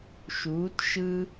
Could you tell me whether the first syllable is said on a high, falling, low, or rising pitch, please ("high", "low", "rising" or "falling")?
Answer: rising